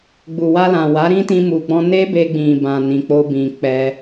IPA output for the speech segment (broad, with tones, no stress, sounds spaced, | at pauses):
ɡ͡b u˨ w a˧ l ã˨ w a˨˦ ɾ ĩ˦ t ĩ˦ m u˧ ɡ͡b ɔ̃˦ n e˦ b e˧ ɡ͡b ĩ˨ b ã˨ n ĩ˧ k͡p o˦ b ĩ˧ k͡p ɛ˧